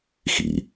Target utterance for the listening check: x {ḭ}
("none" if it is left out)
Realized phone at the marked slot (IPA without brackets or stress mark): ḭ